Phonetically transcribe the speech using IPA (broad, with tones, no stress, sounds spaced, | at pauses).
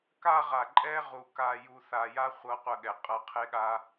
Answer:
k a˦ ʁ a˨ ǃʼ ɛ˦ ʁ u˨ k a˨ j u˨ θ a˨ j a˦ χʷ ɤ˦ qʷ ə˦˨ ɠ ɛ˨ qʼ ɤ˨ qʰ e˦ ɠ a˦